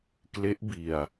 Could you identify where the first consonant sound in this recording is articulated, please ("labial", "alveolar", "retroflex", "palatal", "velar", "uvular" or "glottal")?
velar